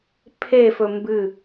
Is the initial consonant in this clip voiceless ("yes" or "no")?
yes